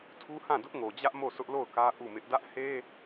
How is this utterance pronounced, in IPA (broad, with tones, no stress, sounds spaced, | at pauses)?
tʰ u˦ h ã˦˨ d ʊ˦ ʔ ŋ o˨ d͡ʑ ä˦ ʔ m o˦˨ sʰ ʊ˦ ʔ l o˦˨ ʊ̯ k ä˦ ʔ u˦˨ m ɪ˦ ʔ d ä˦ ʔ h e˦